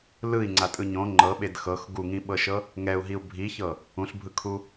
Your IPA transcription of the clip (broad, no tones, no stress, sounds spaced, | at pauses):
l ɯ i̯ ŋ͡ǀ a tʼ ɯ ɲ õ ŋ͡ǃ ɤ ɓ e d x ɤ x ɡ u ŋ ĩ ɓ ɤ ʃ ɤ | ŋ ɛ u̯ ɦ i u̯ bʱ i ç ɤ | ũ ɬ bʱ ɯ kʰ u